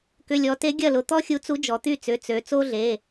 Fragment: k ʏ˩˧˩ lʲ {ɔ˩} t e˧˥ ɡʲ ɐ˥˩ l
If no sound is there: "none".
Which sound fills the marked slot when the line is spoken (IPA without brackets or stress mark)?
ɔ˩˧